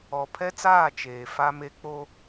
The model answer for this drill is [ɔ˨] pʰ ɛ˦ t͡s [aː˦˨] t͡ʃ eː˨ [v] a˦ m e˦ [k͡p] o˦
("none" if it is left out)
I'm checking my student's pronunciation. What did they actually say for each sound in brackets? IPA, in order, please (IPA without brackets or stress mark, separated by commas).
ɔ˨, aː˦˨, f, k͡p